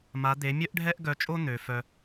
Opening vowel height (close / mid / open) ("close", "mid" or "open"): open